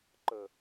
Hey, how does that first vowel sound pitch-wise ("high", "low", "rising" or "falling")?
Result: low